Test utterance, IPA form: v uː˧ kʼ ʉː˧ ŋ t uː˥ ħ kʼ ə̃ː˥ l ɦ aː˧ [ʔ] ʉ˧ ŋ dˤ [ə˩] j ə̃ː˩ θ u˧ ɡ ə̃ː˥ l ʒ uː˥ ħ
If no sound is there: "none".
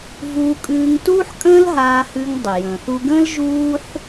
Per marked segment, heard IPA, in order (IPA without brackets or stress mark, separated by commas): h, ə˩